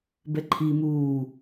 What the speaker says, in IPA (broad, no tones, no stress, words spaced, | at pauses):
bɛǃʰi muː